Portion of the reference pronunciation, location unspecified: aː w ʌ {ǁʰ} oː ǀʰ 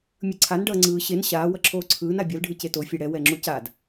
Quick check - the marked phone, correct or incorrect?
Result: correct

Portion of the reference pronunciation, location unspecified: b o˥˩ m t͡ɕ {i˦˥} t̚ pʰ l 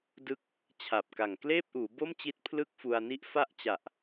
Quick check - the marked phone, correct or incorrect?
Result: correct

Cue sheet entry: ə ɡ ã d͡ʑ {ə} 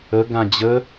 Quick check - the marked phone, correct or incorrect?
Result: correct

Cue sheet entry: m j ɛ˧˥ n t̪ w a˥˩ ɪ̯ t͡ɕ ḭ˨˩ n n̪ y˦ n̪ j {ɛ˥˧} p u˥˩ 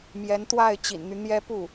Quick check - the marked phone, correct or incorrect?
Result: incorrect: ɛ˥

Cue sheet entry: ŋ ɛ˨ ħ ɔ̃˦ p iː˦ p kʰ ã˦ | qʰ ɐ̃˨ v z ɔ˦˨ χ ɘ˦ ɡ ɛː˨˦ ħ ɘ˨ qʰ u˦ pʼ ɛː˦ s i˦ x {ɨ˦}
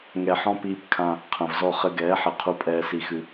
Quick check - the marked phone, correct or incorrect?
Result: correct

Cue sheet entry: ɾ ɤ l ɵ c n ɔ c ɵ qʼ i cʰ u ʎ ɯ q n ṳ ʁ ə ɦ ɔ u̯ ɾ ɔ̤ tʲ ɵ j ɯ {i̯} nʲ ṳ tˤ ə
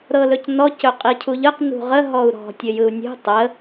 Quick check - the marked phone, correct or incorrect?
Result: incorrect: u̯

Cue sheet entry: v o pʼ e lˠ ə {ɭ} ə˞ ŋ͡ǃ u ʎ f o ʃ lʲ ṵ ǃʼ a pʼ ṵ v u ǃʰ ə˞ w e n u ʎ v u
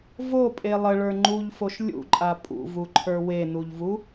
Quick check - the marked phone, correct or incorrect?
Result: correct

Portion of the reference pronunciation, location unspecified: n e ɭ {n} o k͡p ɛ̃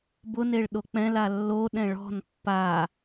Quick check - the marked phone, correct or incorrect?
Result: incorrect: ɗ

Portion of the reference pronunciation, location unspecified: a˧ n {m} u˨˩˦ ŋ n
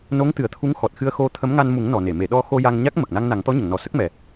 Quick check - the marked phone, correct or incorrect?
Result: correct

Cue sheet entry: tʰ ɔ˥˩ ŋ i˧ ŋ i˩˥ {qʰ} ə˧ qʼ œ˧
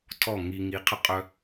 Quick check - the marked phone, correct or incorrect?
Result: correct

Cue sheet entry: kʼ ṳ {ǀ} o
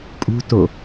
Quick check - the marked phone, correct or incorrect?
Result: incorrect: t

